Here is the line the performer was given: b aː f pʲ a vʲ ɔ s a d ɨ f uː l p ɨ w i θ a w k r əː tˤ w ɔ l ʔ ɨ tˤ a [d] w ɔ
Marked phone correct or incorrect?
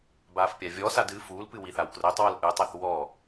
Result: incorrect